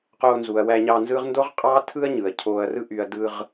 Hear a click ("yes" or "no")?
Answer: no